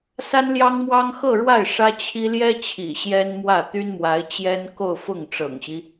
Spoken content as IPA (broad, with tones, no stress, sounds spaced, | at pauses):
s a˥ n l j ɑ˥ ŋ m w ɑ˥ ŋ x ɤ˥˧ ɻ w a˥˩ ɪ̯ ʂ ä˥ t͡ɕʰ i˥ l j ɛ˥ t͡ɕʰ ḭ˨˩ ɕ j ɛ˥ n m w ä˥˩ t̪ y˥ n m w a˧˥ ɪ̯ t͡ɕ j ɛ˥ n k o˥˧ ʊ̯ f ʊ˥˩ ŋ ʈ͡ʂ ɤ̰˨˩ ŋ ɕ i˦